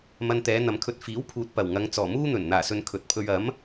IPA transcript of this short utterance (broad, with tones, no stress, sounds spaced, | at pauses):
m ɐ˧ n t̪ ɛː˨˧ n̪ ɐ˨ m kʰ ɵ˧ t̚ f iː˨˥ w pʰ uː˨ t̚ p ɐ˨˩ w ŋ ɐ˨˧ ŋ t͡s ɔː˨˩ m uː˥ n̪ ɵ˨˩ n n̪ aː˨˩ s ɵ˨ n kʰ ɵ˨ t̚ pʰ ɵ˧ ɥ ɐ˨˥ m